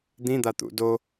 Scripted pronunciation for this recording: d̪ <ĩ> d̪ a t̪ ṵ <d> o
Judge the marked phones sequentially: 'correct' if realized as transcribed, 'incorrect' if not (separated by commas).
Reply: correct, correct